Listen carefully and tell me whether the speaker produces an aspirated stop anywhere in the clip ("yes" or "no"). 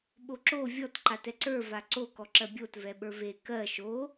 no